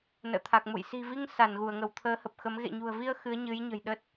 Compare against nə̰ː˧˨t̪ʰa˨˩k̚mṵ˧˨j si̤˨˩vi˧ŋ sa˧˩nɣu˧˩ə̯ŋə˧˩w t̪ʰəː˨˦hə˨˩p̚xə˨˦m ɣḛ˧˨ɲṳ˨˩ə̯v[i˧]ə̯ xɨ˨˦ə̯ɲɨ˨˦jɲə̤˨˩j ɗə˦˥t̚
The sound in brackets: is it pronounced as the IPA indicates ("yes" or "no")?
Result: yes